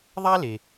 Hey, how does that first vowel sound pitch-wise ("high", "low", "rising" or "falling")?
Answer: high